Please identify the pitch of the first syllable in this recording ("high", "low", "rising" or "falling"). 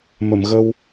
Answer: low